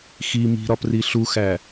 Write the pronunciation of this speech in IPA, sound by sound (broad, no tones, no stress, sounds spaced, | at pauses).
x i m i̤ ɾ ɒ p r i ɬ u x æ